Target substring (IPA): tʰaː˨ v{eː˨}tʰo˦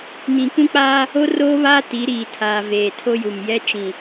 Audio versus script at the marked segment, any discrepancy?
no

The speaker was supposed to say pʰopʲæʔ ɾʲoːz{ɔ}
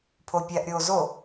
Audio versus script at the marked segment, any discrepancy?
yes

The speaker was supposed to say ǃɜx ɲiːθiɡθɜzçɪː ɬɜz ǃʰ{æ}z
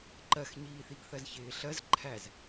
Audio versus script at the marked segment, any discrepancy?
no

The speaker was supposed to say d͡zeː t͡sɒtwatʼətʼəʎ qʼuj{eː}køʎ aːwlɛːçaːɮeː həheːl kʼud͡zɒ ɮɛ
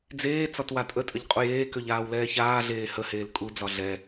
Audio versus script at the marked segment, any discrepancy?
no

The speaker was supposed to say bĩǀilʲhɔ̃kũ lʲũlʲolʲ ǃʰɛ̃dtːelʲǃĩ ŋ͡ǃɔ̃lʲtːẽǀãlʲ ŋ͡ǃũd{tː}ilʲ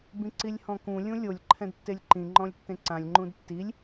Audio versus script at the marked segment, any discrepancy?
no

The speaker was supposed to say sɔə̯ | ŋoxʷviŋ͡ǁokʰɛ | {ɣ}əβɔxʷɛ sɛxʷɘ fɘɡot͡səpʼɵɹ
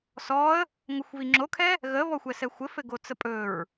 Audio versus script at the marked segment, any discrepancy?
no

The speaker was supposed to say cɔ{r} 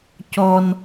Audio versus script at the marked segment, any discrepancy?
yes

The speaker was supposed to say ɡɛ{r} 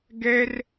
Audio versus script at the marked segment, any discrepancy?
no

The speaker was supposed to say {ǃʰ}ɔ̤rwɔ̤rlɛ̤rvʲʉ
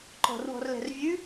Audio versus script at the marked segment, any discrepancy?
yes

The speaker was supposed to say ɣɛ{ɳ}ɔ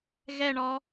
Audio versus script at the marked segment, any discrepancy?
no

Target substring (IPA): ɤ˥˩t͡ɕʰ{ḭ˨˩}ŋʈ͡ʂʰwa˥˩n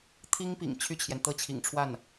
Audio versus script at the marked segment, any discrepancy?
no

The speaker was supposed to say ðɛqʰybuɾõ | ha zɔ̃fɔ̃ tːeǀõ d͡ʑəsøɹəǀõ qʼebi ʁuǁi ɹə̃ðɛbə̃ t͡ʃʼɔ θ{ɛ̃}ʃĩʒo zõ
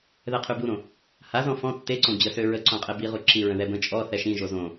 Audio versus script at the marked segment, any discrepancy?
yes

